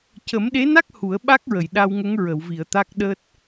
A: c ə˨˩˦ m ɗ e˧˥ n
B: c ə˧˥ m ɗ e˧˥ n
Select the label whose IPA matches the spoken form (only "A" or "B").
A